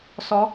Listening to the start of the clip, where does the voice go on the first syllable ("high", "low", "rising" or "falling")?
rising